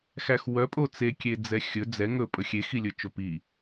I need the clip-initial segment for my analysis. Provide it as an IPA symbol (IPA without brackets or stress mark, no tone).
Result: x